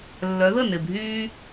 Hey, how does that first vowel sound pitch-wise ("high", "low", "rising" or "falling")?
rising